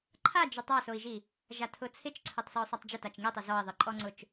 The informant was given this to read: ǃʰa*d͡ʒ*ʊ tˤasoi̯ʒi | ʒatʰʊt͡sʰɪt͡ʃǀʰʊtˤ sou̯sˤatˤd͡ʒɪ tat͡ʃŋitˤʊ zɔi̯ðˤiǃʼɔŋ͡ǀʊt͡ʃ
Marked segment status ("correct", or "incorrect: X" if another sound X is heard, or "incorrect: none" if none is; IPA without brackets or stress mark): correct